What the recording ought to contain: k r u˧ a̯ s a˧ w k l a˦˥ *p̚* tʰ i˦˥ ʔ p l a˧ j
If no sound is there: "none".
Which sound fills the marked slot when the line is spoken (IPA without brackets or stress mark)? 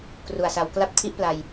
p̚